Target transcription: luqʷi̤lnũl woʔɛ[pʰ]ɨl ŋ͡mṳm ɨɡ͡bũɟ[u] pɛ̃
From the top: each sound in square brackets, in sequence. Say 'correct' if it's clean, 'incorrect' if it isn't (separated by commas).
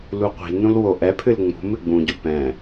correct, correct